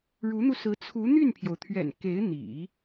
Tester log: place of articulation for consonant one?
retroflex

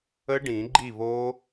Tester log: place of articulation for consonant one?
retroflex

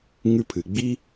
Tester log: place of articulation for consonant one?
velar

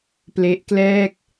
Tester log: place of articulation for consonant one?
labial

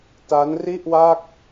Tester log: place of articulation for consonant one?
alveolar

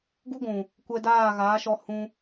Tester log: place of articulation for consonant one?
velar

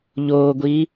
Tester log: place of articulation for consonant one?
palatal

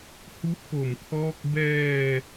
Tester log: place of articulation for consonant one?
glottal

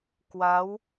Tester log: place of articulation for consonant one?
velar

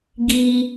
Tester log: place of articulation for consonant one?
velar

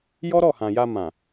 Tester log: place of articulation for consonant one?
palatal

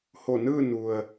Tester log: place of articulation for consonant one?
glottal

